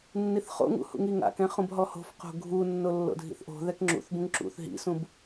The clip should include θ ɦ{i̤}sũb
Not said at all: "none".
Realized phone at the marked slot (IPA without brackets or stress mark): ḭ